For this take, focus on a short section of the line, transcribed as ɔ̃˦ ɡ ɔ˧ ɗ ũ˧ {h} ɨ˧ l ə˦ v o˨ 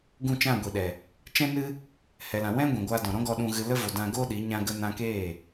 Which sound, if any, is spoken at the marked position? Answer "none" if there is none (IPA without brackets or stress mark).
ɣ